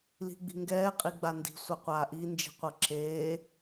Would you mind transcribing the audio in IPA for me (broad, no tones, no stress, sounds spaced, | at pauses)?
l i̤ ɡ͡b i̤ ŋ ɡ ɛː qʼ i ɡ͡b a n d i̤ sʷ a qʷ aː ʔ i n d͡ʒ i̤ qʷ ɤ ǁ eː